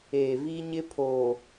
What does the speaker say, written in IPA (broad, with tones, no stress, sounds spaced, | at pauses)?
eː˨ v i˦ ɲ ɪ˦ pʰ oː˨